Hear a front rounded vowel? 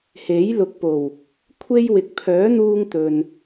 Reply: yes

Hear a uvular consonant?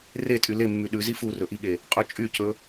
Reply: yes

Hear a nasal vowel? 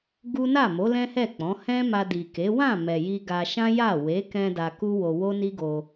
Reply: yes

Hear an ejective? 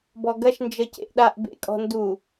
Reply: yes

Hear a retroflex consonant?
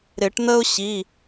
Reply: yes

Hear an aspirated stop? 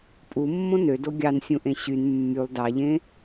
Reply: no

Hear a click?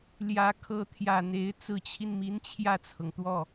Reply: no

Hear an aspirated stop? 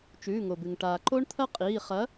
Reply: yes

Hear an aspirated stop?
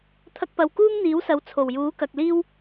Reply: yes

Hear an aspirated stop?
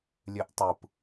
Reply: no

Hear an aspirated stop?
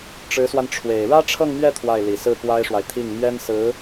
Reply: yes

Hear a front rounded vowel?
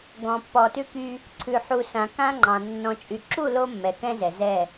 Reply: yes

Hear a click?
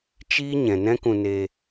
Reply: no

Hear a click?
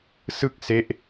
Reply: no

